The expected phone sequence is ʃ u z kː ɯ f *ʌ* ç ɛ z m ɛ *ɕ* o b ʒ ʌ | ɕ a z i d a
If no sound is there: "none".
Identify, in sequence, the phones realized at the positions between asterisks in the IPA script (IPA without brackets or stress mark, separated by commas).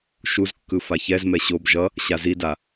a, ɕ